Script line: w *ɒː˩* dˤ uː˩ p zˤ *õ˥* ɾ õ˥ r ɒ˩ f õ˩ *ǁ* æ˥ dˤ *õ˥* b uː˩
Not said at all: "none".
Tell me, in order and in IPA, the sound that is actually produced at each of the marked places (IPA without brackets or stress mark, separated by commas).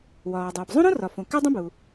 ɒː˩, õ˥, k, õ˥